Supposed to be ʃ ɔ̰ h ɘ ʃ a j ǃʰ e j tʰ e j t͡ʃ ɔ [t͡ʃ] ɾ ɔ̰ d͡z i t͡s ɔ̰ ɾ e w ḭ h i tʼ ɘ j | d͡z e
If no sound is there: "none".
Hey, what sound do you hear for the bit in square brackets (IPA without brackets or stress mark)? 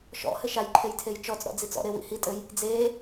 t͡s